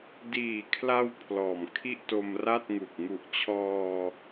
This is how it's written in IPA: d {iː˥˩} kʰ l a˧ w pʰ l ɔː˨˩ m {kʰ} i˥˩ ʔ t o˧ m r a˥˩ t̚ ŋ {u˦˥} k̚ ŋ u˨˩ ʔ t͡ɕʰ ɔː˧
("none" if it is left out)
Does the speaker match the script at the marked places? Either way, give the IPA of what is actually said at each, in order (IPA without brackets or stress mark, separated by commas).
iː˨˩, kʰ, u˨˩